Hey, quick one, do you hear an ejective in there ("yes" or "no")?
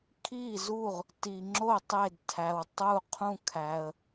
no